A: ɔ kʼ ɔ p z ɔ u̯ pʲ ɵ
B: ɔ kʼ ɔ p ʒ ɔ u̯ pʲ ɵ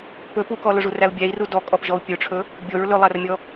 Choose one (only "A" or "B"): B